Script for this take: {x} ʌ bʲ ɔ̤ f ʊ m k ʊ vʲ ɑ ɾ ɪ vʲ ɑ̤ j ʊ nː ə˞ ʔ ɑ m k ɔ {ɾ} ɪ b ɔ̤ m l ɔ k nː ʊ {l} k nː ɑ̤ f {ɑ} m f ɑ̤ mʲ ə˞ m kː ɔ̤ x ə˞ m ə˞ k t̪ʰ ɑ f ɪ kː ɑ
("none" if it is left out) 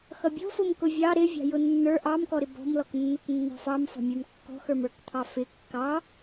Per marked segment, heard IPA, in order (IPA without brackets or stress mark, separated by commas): x, ɾ, none, ɑ